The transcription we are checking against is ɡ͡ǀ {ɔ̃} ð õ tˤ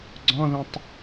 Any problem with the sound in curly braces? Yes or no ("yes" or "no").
no